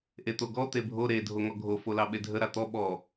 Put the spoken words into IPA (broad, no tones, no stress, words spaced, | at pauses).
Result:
ʔet̪oɡɔ t̪ebʱo ɾe dʱoŋɔɡʱo folɑɓedʱə ɾat̪ɔ ɓɔ